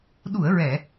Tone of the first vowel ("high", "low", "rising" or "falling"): low